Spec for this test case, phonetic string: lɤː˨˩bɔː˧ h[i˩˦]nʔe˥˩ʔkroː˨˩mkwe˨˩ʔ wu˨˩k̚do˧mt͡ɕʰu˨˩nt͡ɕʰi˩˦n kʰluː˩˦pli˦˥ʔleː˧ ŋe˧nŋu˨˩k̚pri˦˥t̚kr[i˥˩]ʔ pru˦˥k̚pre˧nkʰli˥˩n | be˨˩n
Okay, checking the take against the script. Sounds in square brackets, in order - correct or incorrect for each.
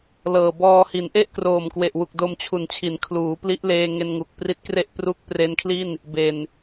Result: correct, incorrect

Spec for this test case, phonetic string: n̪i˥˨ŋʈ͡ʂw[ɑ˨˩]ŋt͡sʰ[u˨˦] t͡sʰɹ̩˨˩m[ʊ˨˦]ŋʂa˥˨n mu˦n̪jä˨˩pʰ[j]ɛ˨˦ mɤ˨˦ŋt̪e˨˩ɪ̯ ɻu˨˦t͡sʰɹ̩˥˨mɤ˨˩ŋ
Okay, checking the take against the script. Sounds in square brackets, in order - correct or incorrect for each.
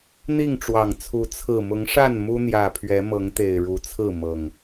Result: correct, correct, correct, incorrect

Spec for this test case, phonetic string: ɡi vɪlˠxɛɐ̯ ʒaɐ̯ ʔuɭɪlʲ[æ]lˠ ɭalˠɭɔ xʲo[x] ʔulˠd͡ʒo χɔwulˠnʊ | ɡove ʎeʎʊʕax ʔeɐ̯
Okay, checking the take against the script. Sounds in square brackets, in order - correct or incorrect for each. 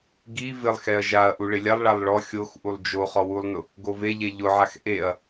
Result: incorrect, correct

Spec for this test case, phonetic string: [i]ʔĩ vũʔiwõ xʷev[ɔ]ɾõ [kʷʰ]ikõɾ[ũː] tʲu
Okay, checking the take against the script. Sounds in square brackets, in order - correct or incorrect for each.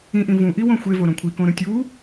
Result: incorrect, incorrect, correct, incorrect

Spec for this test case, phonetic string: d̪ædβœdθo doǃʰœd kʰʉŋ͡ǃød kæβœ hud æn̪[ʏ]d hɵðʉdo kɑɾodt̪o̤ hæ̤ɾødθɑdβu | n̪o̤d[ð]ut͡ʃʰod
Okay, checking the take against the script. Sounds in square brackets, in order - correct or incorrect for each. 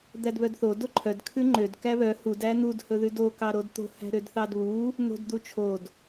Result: incorrect, incorrect

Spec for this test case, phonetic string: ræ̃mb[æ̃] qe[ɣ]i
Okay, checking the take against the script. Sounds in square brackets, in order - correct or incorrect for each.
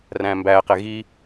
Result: incorrect, correct

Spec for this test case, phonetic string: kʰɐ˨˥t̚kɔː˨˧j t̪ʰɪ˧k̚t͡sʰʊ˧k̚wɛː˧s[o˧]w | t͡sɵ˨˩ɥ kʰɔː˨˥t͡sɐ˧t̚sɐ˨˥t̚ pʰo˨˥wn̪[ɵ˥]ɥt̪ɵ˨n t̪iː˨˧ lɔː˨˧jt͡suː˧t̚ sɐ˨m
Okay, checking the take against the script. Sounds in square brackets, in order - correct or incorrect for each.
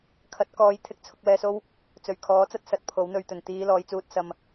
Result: incorrect, incorrect

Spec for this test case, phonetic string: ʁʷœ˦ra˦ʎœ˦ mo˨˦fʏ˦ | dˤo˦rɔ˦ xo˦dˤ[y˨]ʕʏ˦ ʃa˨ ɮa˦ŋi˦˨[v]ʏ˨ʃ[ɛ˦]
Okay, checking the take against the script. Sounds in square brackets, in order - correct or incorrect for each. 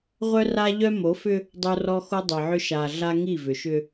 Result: incorrect, correct, incorrect

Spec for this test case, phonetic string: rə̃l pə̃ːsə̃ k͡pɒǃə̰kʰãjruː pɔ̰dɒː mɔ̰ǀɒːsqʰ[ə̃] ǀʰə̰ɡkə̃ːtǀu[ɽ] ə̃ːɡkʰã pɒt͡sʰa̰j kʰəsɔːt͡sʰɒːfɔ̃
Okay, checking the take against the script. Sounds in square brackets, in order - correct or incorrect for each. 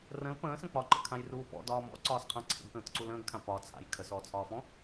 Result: incorrect, incorrect

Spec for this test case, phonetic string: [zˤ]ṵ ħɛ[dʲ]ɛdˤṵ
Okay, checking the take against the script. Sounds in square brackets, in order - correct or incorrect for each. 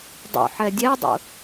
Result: incorrect, correct

